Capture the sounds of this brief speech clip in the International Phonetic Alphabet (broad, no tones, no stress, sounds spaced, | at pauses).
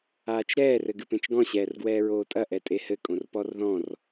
aː t͡ʃ ɾ ɛː r ɘ ɡ ɨ p ẽ t͡ʃ ɡ ɔ̃ ɕ ɛː r ɡ w ɛː ɹ oː tʼ ɐ ʔ ɛ tʼ e h ɘ kʼ õ r p ɔ r ð ɔ̃ r